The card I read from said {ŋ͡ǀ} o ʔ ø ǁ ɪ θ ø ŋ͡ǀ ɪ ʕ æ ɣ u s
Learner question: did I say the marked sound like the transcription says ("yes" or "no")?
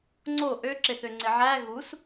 yes